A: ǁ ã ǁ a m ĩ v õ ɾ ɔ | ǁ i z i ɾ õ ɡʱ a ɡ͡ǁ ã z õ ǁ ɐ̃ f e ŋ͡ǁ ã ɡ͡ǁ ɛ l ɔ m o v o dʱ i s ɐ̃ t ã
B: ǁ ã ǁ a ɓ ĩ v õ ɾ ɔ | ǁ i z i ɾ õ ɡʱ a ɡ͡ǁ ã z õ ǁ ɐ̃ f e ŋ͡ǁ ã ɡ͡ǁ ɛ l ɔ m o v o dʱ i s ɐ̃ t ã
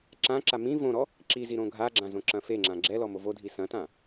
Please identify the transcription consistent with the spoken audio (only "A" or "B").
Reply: A